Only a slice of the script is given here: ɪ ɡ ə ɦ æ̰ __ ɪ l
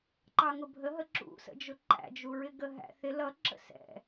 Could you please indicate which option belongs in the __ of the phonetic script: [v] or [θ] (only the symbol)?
θ